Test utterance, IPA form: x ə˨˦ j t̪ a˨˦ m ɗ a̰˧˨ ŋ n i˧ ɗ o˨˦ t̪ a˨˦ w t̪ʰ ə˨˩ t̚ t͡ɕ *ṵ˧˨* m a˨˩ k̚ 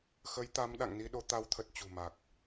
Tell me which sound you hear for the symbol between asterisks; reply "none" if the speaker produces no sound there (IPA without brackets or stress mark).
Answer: ṳ˨˩